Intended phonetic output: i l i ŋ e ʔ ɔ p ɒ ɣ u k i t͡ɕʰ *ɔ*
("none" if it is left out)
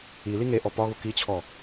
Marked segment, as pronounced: ɔ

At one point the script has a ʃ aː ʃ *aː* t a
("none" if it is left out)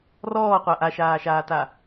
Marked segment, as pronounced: aː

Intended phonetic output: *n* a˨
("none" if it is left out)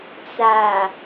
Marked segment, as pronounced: t͡s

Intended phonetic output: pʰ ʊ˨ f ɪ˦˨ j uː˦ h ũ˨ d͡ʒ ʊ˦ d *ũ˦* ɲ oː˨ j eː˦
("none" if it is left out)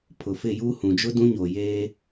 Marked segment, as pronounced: ũ˦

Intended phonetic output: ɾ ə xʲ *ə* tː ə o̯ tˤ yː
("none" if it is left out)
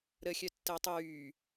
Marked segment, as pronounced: œ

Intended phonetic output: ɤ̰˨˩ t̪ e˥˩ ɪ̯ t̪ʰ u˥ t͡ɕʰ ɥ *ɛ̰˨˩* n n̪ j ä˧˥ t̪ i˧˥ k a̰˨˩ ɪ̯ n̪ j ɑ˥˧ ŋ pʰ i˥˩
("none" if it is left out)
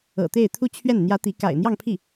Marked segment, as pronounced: ɛ˥˩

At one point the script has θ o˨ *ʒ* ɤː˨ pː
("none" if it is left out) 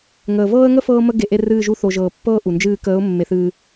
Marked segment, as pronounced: ʒ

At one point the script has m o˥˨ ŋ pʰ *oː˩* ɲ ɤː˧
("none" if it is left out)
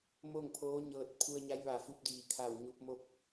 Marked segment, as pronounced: oː˧˥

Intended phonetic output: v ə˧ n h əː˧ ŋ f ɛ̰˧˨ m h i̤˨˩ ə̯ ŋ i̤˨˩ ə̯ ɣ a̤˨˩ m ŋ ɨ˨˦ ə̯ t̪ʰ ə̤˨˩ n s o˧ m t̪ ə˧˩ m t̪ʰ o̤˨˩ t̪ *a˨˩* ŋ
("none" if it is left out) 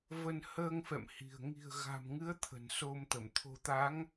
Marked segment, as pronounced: a˨˦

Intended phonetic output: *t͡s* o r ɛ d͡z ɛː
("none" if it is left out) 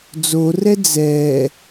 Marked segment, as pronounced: d͡z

